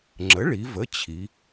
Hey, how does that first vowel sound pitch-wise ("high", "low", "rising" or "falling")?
rising